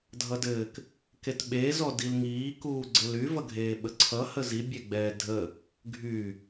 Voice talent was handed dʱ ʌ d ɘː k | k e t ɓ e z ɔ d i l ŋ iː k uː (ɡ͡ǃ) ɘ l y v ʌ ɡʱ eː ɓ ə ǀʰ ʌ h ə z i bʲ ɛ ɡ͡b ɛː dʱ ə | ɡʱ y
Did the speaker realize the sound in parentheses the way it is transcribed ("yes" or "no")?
no